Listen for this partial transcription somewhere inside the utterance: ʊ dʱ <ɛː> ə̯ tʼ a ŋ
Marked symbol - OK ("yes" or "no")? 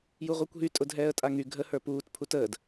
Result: yes